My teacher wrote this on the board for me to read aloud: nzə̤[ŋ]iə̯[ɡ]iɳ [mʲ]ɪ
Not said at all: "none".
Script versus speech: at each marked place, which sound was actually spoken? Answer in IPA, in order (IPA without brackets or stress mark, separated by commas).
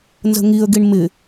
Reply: ŋ, ɡ, m